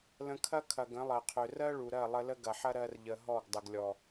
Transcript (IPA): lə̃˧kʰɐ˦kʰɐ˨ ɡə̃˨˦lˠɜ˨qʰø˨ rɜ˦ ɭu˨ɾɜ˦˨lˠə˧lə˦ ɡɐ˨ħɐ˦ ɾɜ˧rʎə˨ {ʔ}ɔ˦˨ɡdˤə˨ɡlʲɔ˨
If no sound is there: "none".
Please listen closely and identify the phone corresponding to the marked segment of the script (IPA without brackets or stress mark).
ɦ